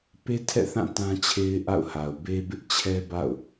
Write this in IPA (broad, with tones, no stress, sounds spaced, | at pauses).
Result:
p e˦ tʰ ɛ̰˦˨ θ ã˦˨ t ã˦ t͡ɕʰ e˦ ɪ̯ ʔ a̰˦˨ ʊ̯ h a˨ ʊ̯ b e˦ b ɪ˦ ʔ t͡ɕʰ ɛ˦ b a̰˦˨ ʊ̯